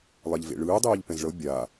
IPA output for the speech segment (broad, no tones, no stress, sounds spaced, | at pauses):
lˠ ɛ ʎ v ḛ ɭ ɯː dˤ iː ʎ p ɛ̃ z ɭ ɤ bʲ a